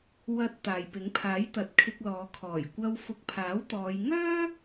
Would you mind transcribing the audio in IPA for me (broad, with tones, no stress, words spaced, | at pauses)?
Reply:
wɐ˧t̚ t̪aː˨jpɪ˨˥ŋpʰaː˨˥jt̪ɐ˨˥t̚ kʰɪ˧k̚lɔː˨˧ kʰɔː˨˩jkʷɐ˧w fʊ˨˥k̚pʰaː˨˥wt̪ɔː˨˧j ŋœː˥